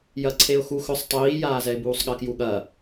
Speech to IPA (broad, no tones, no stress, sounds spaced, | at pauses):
j ɐ ǀʰ e ʊ̯ x u x ɵ sˤ tˤ iː j aː z ɛ ɪ̯ b uː sˤ ɠ ɐ k j u ɠ ɐ